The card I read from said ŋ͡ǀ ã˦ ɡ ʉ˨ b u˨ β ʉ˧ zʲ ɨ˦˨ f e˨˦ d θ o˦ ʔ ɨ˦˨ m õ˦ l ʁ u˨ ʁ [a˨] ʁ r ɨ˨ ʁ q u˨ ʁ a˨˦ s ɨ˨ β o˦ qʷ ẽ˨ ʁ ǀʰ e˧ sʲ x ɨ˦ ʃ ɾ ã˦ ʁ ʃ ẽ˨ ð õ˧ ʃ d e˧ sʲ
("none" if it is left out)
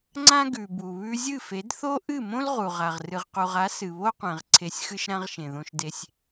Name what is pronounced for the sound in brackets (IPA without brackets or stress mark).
a˨